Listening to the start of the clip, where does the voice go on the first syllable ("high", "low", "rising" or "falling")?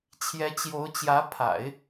rising